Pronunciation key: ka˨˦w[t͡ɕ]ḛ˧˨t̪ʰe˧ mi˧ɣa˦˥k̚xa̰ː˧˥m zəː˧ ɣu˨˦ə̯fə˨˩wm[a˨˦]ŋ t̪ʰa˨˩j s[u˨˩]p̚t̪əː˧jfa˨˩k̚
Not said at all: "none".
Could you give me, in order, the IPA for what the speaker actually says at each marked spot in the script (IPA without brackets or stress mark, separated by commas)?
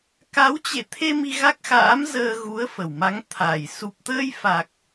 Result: t͡ɕ, a˨˦, u˨˩